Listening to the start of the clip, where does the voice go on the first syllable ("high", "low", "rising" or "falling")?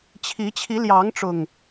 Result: rising